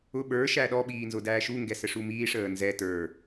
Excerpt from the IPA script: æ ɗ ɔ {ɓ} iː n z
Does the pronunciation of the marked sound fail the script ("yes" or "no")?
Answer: no